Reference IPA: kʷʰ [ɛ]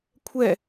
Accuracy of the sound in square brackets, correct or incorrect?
correct